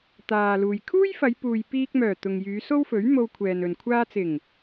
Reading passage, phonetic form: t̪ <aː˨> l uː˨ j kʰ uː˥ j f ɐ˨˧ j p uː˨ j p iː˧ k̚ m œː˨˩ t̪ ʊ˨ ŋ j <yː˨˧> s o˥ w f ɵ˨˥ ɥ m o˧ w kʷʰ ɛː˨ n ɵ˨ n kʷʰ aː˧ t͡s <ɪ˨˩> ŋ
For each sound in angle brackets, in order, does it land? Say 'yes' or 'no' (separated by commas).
yes, yes, yes